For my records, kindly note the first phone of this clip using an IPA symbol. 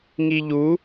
ŋ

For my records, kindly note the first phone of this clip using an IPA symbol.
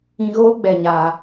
ĩ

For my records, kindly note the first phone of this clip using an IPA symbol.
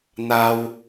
n̪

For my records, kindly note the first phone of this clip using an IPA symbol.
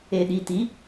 e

